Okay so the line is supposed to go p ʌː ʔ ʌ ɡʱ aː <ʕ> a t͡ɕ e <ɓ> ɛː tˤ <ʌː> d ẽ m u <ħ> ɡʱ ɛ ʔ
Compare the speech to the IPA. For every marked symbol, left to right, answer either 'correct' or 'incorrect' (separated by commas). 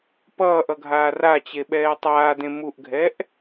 incorrect, correct, incorrect, incorrect